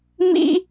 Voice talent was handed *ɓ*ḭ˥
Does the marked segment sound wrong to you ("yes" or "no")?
yes